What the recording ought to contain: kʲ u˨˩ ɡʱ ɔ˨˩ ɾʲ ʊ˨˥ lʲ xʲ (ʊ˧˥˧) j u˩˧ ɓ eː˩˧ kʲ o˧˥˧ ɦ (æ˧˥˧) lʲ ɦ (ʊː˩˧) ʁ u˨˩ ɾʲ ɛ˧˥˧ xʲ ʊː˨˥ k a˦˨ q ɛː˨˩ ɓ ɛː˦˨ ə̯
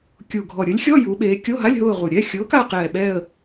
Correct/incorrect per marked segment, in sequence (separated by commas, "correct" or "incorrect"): incorrect, incorrect, incorrect